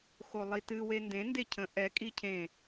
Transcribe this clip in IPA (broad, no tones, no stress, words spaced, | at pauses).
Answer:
xolˠitɨ wendẽ ndecʰə̃ ʔɛ kʼicʰẽ